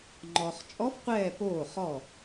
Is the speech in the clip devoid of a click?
no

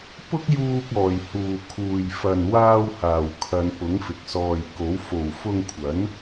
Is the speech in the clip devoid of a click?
yes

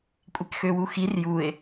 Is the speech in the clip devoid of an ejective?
no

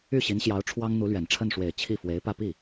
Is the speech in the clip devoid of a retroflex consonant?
no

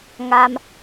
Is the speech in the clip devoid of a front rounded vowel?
yes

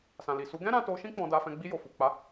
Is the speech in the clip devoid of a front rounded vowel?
yes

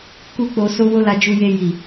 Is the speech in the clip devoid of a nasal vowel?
yes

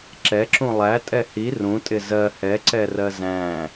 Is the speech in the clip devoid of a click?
no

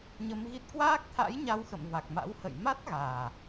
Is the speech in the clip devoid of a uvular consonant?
yes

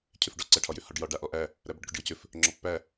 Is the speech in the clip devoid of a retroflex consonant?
no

